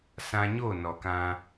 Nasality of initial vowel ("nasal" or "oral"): nasal